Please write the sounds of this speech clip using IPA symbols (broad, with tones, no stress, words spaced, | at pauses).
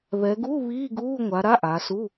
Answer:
βɛ˩˧ɡu˧˥˧ βiː˧˥˧ɡuː˧˥˧ŋʷa˩˧ ɾa˧˥˧ʔa˩˧su˧˥˧